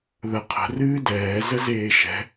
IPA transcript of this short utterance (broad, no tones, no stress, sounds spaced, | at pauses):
ð ə qʰ ə̤ r ɨː d ɛː z ə z eː ʃ ɛ̤